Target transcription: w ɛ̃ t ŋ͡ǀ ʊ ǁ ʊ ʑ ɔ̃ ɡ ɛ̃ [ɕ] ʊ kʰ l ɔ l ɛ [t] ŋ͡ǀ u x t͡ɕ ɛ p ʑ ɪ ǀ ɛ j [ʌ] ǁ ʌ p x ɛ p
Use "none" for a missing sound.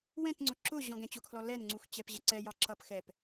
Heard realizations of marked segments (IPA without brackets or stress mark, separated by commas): t͡ɕ, n, ɑ